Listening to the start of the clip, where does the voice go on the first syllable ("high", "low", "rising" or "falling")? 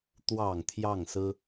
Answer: low